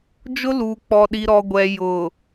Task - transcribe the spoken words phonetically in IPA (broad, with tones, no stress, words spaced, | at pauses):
d͡ʒʊ˦luː˨k͡pɔ˨ ɗi˨ɾɔ˨ɡʷɛ˨ jʊ˨